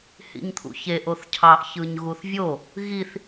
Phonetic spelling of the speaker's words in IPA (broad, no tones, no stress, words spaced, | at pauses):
hḭɲt̪ʰṵçe ʔoθcʰɑʔ çɯɲɣuθvʲo | ɣiθ